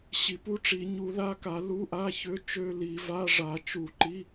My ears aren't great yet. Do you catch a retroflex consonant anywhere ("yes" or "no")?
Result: yes